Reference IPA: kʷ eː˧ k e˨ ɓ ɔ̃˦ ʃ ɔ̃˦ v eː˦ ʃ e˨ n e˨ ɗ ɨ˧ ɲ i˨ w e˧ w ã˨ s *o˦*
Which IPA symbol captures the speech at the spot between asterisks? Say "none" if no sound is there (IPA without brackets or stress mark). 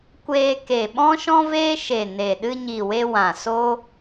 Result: o˦